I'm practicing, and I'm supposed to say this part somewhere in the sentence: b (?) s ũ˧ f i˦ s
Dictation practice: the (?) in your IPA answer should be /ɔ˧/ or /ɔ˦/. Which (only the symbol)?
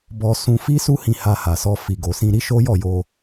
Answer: ɔ˧